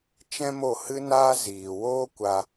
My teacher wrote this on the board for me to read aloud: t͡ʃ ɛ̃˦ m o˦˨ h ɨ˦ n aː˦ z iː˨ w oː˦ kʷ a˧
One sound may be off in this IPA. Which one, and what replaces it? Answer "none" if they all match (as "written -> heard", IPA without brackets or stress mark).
none